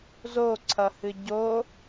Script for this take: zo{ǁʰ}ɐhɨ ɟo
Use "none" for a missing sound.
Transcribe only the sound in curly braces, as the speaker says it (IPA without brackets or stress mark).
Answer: ǀʰ